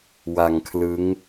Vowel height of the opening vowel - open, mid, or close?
open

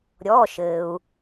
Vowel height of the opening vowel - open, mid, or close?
mid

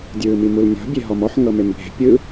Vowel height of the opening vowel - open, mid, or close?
close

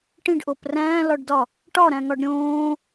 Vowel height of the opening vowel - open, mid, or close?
close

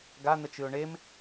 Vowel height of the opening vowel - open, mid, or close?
open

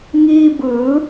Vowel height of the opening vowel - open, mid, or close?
close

